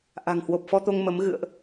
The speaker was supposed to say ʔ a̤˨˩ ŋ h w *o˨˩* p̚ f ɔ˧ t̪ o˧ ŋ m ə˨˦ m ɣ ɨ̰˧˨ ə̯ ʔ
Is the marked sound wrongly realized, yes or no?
no